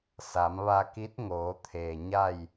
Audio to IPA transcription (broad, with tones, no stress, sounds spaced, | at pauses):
s a˩˧ m ʋ a˧ k i˧˥ t̚ ŋ oː˩˧ t̪ʰ eː˩ ɲ a˥˨ j